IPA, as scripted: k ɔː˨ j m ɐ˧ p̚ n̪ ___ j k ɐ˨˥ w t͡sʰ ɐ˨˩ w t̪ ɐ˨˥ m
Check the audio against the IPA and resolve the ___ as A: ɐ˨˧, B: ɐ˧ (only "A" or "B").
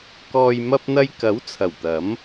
B